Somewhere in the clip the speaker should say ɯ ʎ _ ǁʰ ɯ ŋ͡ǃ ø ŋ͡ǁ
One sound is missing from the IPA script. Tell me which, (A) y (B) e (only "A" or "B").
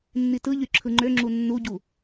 A